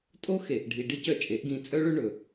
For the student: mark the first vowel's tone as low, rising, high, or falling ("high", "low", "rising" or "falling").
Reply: high